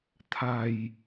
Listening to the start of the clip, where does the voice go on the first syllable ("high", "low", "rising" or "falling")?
low